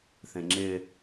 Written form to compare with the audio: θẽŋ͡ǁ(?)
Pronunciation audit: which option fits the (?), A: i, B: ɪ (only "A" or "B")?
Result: B